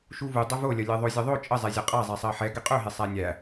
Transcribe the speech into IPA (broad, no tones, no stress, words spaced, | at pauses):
ʃuvu dˤɵvolʲɐ lʲeðˤozʲəðˤo t͡ʃʼəzˤɛzʲɐ qʼazˤɛ sˤɜħɛ ɡɛqʼɵɦe sˤænʲæ